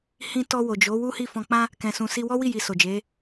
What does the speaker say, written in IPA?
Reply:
h ĩ˧ t ɔ˧ w o˨ d͡ʒ o˨˦ w u˦ h i˦˨ f ɔ̃˧ k͡p ã˦ | k ɛ̃˨ s ũ˨ s i˧ w ɔ˦ w i˦˨ j i˧ s o˨ d͡ʒ e˨˦

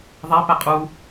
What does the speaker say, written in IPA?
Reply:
ðˤ æ p æ qʼ u

